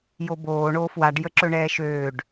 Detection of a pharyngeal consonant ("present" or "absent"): absent